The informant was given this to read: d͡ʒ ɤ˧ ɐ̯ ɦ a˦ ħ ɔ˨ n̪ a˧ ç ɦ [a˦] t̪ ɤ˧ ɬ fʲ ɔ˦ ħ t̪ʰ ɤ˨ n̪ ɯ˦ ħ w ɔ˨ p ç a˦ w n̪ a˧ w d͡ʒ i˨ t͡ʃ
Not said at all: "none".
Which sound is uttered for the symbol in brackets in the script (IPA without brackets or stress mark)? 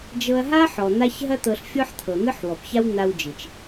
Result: ɐ˦